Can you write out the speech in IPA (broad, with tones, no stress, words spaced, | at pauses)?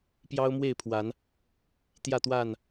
pjɑ˦ʊ̯mwe˥˨ɪ̯pʰwa˨˦n | t̪jä˥˨t̪wa˥˨n